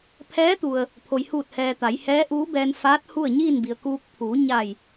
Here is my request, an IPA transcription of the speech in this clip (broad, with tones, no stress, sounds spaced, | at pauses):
pʰ ɛː˧˥ t̪ u˩ ə̯ | pʰ o˩ j h uː˧˩ t̚ h ɛː˩ t̪ a˩˧ j h ɛː˧˥ ʔ uː˧˥ b ɛː˧ n f aː˧˥ t̚ h u˥˨ ə̯ ɲ iː˥˨ n b i˩ ə̯ k uː˧ k̚ pʰ uː˩˧ ɲ a˧˩ j